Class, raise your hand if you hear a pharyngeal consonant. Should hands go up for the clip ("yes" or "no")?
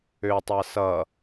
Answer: no